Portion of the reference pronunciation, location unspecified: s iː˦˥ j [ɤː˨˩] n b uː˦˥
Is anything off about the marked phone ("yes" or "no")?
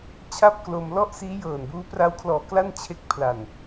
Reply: no